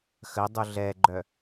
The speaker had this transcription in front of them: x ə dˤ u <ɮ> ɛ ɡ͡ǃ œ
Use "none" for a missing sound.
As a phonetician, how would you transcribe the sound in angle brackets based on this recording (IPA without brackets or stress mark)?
ɮ